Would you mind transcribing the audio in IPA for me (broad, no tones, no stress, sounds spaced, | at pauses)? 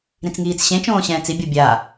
ɾ ĩ t͡s ŋ iː t͡s ɕ ẽ t͡ʃ õː ɕ ɛ̃ː t͡s i bʲ o bʲ a